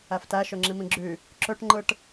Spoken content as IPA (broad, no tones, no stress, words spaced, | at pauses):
æftæ ʃøŋ͡ǁimĩɡ͡ǁy | ǁøʈŋ͡ǃɯʈ